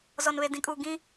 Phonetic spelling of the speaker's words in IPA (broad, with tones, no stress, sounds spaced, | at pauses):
z ɔ˨ n β e˨ d ĩ˨ kʼ uː˨ ɡ ĩ˦